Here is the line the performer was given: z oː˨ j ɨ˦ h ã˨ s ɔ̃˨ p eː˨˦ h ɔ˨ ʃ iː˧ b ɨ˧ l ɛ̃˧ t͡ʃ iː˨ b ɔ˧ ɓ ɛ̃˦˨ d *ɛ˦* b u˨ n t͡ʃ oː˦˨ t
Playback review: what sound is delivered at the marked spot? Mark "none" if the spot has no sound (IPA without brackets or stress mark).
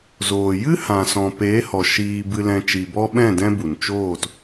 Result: ɛ̃˦